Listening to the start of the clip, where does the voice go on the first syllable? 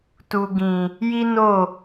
low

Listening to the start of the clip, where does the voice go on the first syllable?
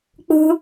high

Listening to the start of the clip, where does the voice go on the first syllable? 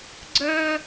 high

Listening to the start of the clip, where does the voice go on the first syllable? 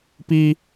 high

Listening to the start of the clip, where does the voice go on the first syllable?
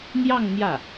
falling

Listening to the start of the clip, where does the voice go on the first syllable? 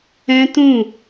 high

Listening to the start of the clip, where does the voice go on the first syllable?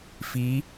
rising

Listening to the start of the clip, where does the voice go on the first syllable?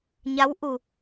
rising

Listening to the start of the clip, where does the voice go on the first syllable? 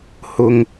high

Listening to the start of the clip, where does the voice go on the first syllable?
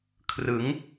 rising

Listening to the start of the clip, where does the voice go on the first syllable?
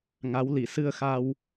rising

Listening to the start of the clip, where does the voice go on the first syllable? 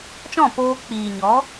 falling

